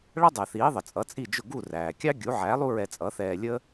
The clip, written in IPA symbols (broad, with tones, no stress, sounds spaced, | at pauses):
ɭ ʌ˥ dˤ ɛ˩ θ iː˩˥ ðˤ ə˩ t͡sʼ ʌ˩˥ t͡sʼ i˥˩ d͡ʒ ʊ˥˩ ɡ u˥˩ r æː˩ kʲ ɑ˥ ɡʲ u˩˥ ʕ æ˩˥ lˠ u˥ ɹ ɛ˧ t͡sʼ ʌ˩˥ θ ɛː˧ lʲ ə˥